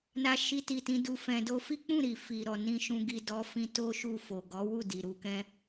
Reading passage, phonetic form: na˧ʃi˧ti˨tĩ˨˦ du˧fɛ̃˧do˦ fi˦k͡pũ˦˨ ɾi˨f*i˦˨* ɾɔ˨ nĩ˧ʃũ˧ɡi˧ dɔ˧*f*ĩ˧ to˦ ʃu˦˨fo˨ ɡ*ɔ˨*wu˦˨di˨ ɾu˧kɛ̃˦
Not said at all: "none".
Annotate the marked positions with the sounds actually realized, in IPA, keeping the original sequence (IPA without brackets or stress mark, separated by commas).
i˨, f, ɔ˨˦